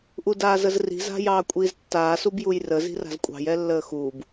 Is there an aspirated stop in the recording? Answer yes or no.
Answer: no